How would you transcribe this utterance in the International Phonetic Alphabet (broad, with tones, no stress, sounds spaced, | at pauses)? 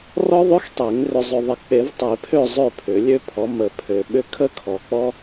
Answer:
r ɔ˥ ðˤ ø˥ x tˤ e˨˩˦ ŋ r ʏ˨ zˤ ʏ˨ ðˤ ə˨˩˦ k͡p e˨˩˦ v tˤ e˨˩˦ pʰ ø˥˨ zˤ ø˥˨ pʰ ʏ˨˩˦ lʲ ø˥ pʰ ɔ˨˥ m ə˨˩˦ pʰ ø˨ ɓ ʏ˥ kʰ ə˥ kʰ ɔ˨ k͡p ɔ˥